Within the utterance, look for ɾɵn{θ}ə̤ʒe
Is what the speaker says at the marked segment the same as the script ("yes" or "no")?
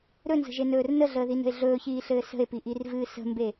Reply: no